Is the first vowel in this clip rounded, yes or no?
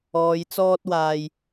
yes